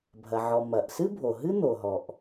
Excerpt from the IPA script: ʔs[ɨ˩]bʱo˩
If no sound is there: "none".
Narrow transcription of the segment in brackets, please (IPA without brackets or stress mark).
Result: ɨ˥